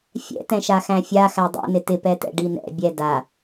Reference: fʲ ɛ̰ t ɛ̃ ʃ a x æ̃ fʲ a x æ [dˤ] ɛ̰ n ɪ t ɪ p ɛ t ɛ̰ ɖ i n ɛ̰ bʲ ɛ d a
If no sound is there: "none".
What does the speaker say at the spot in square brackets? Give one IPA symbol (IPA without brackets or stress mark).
dˤ